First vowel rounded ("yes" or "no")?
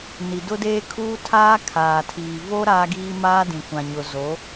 no